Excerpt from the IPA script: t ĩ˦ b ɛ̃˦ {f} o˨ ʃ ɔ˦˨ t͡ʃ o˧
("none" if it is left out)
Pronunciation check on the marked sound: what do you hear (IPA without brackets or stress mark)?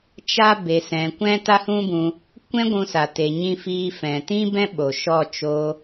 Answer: ɓ